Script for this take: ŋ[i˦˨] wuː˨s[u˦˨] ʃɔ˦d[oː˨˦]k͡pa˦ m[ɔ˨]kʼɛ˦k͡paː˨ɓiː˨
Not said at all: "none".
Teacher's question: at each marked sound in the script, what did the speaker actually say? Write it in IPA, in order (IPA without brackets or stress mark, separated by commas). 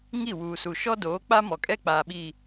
i˦˨, u˨, oː˨˦, ɔ˨